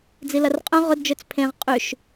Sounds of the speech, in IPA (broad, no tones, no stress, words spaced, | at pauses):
d͡zilɐrqʼœ̃ ʁʊdd͡ʒøt͡s pʰẽʁ qʼyʃ